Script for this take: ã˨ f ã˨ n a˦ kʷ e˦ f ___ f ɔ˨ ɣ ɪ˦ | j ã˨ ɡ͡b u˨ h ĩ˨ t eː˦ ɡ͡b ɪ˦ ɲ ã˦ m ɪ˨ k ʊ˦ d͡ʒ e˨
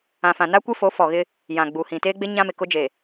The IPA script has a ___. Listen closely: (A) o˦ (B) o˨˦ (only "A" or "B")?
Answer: B